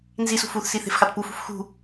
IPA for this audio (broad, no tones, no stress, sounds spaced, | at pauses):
n z i s ṳ f u θ s i θ e̤ f x ɑ t p u f ṳ f x ṳ